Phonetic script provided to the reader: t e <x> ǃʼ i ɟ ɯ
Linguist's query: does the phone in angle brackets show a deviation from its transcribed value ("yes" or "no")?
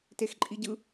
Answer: no